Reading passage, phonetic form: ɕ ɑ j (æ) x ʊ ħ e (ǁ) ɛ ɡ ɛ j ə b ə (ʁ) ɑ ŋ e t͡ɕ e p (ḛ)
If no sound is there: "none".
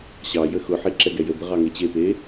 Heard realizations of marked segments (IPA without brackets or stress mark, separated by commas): ə, ǁ, ʁ, e